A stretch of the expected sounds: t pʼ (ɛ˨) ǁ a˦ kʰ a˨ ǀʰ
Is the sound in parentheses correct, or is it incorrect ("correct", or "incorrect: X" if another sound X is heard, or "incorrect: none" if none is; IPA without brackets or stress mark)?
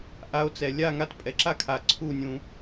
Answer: correct